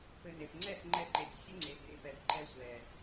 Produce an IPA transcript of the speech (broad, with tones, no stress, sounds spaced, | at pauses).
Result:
p ɘ˧ n e˨ p ŋ͡ǀ ɛ˦˨ s ŋ͡ǃ ɛ˧ ǃ e˨ tʲ sʲ ɘ˦ ŋ͡ǀ e˨ h ḛ˧ p ɛ˨ b ǃ ɛ˧ sʷ ɛ˨